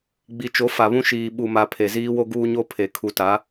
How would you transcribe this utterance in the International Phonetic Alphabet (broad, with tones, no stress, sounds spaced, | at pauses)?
ɡ͡b i˨ t͡ʃ o˨˦ f a˨ β ũ˦ ʃ iː˨ ɓ u˨ m a˨ pʰ e˨ z iː˦ w o˦ ɡ uː˦ ɲ o˦ pʰ e˨ kʰ u˨ t a˨˦